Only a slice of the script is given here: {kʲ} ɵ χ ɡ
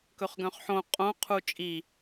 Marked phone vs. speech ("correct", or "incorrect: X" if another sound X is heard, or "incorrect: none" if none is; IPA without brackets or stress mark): incorrect: k